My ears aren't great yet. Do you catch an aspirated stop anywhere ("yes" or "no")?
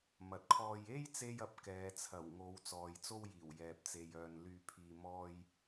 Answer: yes